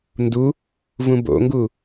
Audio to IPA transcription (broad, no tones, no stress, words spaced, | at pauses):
ndu | vũbo̰ŋɡu